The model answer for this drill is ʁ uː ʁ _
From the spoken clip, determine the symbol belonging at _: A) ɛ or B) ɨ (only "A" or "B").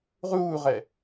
A